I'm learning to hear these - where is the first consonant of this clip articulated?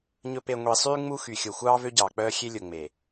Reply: palate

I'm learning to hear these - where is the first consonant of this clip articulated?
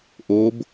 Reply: throat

